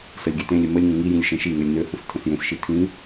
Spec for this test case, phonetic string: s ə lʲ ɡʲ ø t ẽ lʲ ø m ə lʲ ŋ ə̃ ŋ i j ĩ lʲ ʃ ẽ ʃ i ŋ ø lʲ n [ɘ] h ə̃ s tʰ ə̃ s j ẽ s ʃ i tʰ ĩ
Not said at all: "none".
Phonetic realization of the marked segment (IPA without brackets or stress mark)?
ø